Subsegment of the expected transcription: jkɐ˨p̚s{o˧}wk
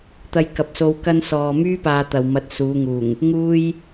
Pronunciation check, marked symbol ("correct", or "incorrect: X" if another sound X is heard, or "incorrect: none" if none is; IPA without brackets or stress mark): correct